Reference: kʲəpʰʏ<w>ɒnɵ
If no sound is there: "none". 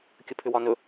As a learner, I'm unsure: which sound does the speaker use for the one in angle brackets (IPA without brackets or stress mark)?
w